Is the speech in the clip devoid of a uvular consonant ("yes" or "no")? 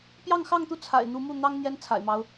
yes